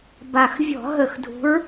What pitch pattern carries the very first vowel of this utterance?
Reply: low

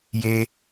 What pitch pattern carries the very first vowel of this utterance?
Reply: high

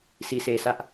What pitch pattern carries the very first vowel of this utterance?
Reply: low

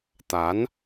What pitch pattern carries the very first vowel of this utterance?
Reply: rising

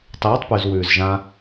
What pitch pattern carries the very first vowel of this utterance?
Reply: rising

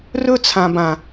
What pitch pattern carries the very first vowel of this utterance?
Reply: high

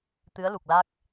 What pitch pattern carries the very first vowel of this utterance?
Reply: rising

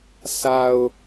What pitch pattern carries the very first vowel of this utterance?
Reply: low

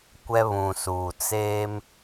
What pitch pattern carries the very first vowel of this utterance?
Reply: high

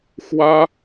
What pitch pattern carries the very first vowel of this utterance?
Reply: high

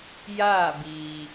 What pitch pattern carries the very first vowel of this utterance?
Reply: falling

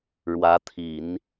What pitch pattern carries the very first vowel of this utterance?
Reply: rising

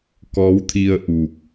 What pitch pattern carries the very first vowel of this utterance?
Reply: rising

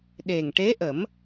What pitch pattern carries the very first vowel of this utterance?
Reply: low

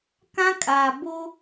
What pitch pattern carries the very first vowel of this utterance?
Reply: high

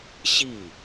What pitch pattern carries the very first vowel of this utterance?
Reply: falling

